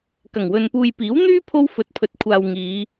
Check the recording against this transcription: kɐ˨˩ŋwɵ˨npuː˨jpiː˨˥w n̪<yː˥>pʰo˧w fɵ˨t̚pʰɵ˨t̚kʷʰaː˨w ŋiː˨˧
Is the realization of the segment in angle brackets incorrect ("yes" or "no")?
no